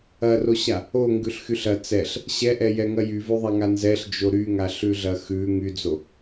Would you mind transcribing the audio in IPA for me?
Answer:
ɐ r o ɕ a | o ŋ ɡ ʉ ɬ x y ɬ ɐ t͡s ɛ ɬ | ɕ ɛ ʔ ɛ j ɛ ŋ ɐ j y v ʉ ðˤ a ŋ a n z ɛ ɬ d͡ʒ o ɾ y ŋ a ɬ ʉ ɮ ɐ x ʉ ŋ y d͡z o

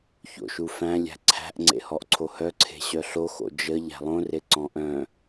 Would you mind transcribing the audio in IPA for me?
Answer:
ç o̰ ʃ u f æ̃ lʲ æ̤ ǀʰ æ̤ ʔ ŋ͡ǀ ḛ h ɔ ʔ ǀʰ o h œ ǀʰ e̤ ɕ œ ɬ o x o̰ d͡ʒ ə ʎ æ̤ lˠ õ r e ǀ ɔ̃ ʔ œ̃

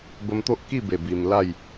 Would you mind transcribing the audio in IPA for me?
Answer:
b ə˧ m t̪ o˦ ʔ k i˥˧ b e˨˩ b i˧ m l a˥˧ j

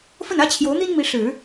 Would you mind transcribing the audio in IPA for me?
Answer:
f ə˥˩ n ä˥ t͡ɕʰ j o˧˥ ʊ̯ n̪ i˥ n m i˧˥ ʂ ɻ̩˨˩˦

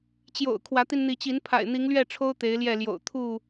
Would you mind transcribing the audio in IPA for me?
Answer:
t͡ɕ j o̰˨˩ ʊ̯ kʰ w ä˨˦ t̪ i˧ n n̪ i˨˦ t͡ɕ i˨˦ n pʰ a̰˨˩ ɪ̯ n̪ i˨˦ ŋ l ɥ ɛ˥˨ ʈ͡ʂʰ o˦ ʊ̯ t̪ e˨˦ ɪ̯ l j ɛ˥˨ l j o̰˨˩ ʊ̯ t̪ʰ u˥˨

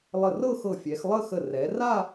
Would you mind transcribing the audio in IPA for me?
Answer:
lˠ ə˧˩ r ɤ˥˧ x ɤ˧˩ fʲ ɛ˩˧ x lˠ ə˥˧ x ə˧˩ r ɛ˩˧ r a˥˧

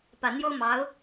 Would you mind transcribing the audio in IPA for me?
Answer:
p ä˨˩ n̪ j o˥ ʊ̯ m ɑ˧˥ ʊ̯

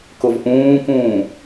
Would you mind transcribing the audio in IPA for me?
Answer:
k ʊ v ʔ ũː k ũː

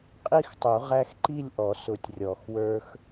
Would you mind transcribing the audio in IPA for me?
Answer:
qʼ i˥˧ x tˤ u˨˩˦ ʁ æ˧ x ǃ i˥˧ lʲ ʔ ɔ˨˩˦ s ʊ˨˩˦ tʲ rʲ ɔ˨˩˦ x w ə˞˧ x

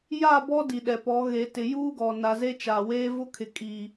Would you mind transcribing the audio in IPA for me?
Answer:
j a˦˨ b ɔ˦ d i˨ ɗ ɛ˨ p ɔ˨˦ ɣ e˨ t ɪ˨ j uː˦ ɡ ɔ˨ n a˨ z e˦ t͡ʃ a˨ w eː˦ v ʊ˦ kʰ ɪ˨ kʼ i˨

